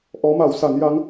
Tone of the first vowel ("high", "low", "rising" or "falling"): rising